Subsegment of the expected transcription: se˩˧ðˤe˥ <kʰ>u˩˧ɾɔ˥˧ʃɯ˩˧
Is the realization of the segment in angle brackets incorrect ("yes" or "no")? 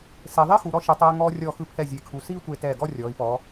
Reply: yes